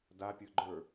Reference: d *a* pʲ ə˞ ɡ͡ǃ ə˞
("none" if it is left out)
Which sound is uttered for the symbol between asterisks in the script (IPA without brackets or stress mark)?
a